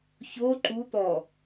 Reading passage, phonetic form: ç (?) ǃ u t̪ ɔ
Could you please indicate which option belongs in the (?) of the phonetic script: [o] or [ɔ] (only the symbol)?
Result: o